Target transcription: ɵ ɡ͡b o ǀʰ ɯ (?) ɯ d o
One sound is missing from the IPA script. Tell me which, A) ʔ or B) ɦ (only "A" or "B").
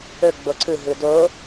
B